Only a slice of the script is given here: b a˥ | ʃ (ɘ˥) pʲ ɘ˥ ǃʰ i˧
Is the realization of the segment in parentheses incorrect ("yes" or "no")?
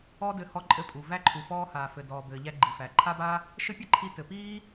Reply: no